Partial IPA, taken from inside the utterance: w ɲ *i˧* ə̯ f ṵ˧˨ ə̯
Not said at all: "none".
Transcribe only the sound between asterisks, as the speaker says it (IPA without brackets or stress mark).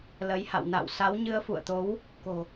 ɨ˧